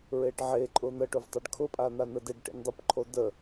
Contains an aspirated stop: yes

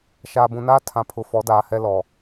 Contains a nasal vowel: yes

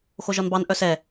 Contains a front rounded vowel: yes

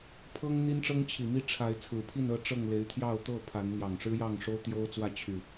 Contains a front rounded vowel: yes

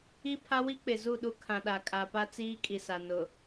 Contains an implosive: yes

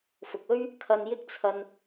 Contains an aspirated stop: yes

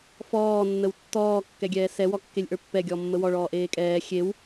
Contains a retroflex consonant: yes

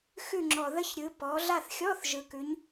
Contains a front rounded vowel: no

